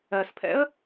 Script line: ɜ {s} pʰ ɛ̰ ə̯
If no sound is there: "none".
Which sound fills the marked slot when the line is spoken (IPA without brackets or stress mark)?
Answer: s